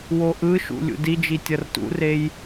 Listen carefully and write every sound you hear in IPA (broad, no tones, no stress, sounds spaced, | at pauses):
w o ʔ ɯ ʃ ṵ lʲ ṵ d i d͡ʒ i tʲ ʌ r t ṵ r e j